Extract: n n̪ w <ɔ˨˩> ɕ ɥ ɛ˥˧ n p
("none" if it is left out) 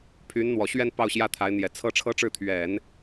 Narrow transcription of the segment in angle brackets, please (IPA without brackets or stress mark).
ɔ˨˩